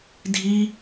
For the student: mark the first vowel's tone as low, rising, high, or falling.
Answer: high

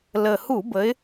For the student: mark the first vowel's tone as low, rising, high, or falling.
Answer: low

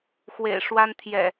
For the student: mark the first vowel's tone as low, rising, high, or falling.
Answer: low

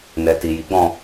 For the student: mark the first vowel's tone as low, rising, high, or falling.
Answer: low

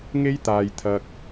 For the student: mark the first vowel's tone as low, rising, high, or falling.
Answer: high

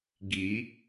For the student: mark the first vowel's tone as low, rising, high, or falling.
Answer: rising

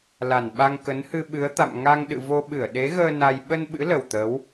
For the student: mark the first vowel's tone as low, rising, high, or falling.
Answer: low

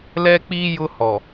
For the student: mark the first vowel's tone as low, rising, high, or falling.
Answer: high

